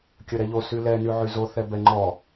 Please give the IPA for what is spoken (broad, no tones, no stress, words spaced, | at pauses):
kʲəɾɛʎo sylɛ nyʕyzo θɛbɛŋ͡ǃɔ